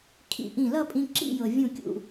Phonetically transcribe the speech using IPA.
kʰ ḭ˧˩ ʔ ĩ˧˩ l ʌ˥˧ pʼ ĩ˧ ǁ ḭ˥˧ j ɤ˩ vʲ ũ˧˩ kʲ ṵ˧˩

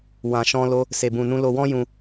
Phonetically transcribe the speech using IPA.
w ã˧ ʃ ɔ̃˦ l o˦ | s e˧ b ũ˧ n ũ˦ l o˧ w ɔ̃˦ j ũ˧

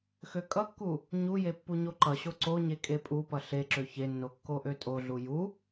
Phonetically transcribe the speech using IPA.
x ø kʼ ʌ kː u | ɲ u j e pː u ɲ o ǃ ʌ ɕ o ǀ o ɲ e kʼ e pʼ u p ʌ ɬ e ǁ ø ç e nː o kː o ʔ ø tʼ o ɮ u j u

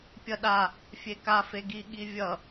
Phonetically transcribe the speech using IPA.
pʲ ʌ ɗ a | fʲ e k a f e ɡ i ɠ i vʲ ʌ

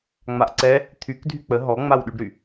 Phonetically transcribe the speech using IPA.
ŋ͡m a ʔ ǀ ɛ | t̪ʰ y k dʱ y k͡p ə ɦ ɔ ŋ͡m a w ɗ y ɖ ɾ y

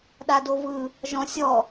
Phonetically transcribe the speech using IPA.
ɗ a d o v ɯ | ʒ ɔ̃ sʲ ɔ

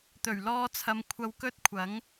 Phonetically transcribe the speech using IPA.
t̪ ɵ˨˩ ɥ l ɔː˧ t͡sʰ ɐ˨ m kʷʰ ɐ˧ w k ɵ˥ t̚ kʷʰ ɐ˨˥ ŋ

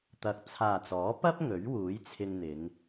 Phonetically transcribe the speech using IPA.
t̪ ɐ˨˥ k̚ t͡sʰ aː˨ t͡s ɔː˨˥ p ɐ˥ p̚ ŋ ɵ˨˥ ɥ w uː˨˥ j t͡sʰ ɪ˧ ŋ n̪ ɪ˨˧ ŋ

